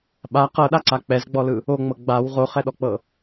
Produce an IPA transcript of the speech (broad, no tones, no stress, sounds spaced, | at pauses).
ɓ a q ɤ ɗ a ǀ a k͡p ɛ z ɡ͡b ɔ l ɯ | o ŋ͡m ɤ ɡ͡b a w ʁ o χ ɛ ɗ ɔ k͡p ɤ